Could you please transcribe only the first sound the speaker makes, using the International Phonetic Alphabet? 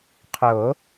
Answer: qʰ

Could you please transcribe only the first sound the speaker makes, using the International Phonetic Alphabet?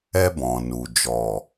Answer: ɛ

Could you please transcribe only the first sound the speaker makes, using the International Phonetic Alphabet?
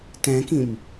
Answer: t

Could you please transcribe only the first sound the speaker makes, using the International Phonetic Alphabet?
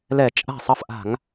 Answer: l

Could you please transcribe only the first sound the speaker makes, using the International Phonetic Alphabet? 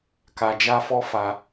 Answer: k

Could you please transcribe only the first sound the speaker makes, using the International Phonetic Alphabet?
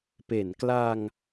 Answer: p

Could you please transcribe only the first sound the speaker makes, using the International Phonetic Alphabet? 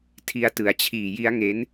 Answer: tʰ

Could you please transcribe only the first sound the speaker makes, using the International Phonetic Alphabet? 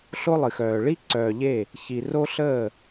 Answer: ɬ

